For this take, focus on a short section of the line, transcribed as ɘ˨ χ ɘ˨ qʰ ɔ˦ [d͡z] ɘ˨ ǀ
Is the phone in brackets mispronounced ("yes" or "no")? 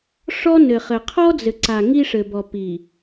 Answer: no